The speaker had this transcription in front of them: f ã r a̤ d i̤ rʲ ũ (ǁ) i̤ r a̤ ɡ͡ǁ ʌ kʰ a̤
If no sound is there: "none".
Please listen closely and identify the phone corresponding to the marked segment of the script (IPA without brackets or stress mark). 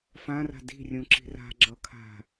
ǁ